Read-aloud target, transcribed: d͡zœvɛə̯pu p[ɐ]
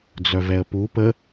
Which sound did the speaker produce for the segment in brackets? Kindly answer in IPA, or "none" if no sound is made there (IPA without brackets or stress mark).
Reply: ə